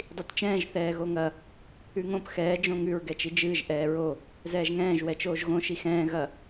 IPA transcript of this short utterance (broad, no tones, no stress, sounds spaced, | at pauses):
dˤ i t t͡ʃ ɛ̃ː ʒ θ ɛː ɣ o ŋ ɐ | ʉ ŋ õ p x ɛː d͡ʒ õ ŋ ʉ ɹ ɡ ɛ t͡ʃ i d͡ʒ ɨː ʒ ʔ ɛː ɹ o | z ɛː ʒ ŋ ɛ̃ː ʒ w ɛ t͡ʃ oː ʒ ɣ õ ʃ i x ɛ̃ː ɣ ɐ